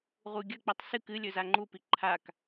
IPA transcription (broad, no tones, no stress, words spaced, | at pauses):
ʁuɡʲɐ k͡pitˤsɨk ɨ lʲɵzaŋ͡ǃu piǃʰak